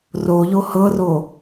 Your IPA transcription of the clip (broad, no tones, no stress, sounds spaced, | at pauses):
r o ʎ o h ɤ r o